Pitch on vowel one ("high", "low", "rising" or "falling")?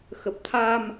low